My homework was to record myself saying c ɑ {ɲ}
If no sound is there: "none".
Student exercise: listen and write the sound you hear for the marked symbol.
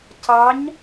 ɲ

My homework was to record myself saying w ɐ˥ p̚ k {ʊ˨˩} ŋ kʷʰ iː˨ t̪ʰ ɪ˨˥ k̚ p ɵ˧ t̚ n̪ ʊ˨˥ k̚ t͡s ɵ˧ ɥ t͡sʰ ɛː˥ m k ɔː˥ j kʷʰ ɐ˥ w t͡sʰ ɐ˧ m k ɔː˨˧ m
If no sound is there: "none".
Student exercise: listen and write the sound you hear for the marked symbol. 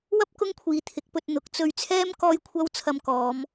ʊ˥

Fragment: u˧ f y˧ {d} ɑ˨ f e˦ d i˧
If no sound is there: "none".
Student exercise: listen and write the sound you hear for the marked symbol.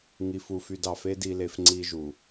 d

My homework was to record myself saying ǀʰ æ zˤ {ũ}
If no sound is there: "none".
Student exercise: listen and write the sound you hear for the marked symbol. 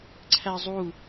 u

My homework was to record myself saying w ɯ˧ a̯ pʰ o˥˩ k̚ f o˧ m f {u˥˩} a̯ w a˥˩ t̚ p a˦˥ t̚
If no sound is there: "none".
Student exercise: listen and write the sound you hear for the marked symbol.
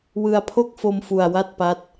u˧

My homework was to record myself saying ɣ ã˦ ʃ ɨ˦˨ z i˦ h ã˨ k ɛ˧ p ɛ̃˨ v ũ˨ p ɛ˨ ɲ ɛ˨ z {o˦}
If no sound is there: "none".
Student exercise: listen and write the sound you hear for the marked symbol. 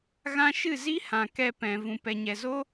o˦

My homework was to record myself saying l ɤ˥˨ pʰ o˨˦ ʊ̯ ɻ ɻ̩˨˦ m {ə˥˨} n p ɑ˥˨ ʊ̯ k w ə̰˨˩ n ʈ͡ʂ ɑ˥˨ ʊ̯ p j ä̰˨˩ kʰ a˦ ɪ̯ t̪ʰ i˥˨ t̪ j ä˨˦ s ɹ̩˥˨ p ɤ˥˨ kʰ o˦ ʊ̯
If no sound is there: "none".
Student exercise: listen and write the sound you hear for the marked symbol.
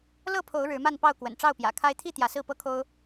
a˥˨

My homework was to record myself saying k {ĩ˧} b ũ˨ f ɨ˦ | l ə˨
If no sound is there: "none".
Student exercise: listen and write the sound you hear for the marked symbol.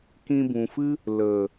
ĩ˧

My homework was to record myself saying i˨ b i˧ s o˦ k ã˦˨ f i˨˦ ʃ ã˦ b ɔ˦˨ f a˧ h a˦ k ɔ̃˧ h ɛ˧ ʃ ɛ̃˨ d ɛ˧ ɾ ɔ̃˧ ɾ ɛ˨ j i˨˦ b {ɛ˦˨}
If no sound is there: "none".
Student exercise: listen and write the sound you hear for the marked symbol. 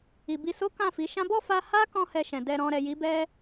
ɛ˦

